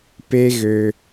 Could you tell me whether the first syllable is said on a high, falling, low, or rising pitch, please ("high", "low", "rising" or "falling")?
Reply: high